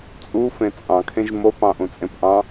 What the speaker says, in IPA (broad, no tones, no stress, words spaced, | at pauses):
t͡sʼu fẽt͡sʼɑ̃kʰẽʒ mopɑ̃ ʔũt͡sʼẽpʔɑ̃